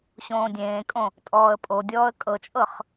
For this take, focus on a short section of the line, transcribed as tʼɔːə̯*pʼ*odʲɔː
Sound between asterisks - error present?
no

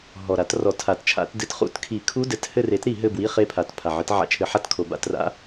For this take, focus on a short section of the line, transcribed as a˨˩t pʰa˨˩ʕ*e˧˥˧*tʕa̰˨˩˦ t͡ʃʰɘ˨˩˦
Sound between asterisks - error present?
yes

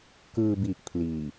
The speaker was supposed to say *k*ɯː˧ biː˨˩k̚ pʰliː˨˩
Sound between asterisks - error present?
no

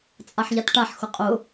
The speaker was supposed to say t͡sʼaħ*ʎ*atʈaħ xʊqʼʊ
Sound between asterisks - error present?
no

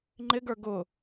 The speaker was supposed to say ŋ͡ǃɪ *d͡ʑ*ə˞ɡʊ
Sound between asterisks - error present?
yes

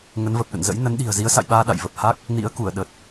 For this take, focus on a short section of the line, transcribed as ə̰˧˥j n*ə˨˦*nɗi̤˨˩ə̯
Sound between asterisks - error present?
no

